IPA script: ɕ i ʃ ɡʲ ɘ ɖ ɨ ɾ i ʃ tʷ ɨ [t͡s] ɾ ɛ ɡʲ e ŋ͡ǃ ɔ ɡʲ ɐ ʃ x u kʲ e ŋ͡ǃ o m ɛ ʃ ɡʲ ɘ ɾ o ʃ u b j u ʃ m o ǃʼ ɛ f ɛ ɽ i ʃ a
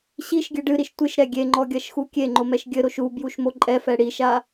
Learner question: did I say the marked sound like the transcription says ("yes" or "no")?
no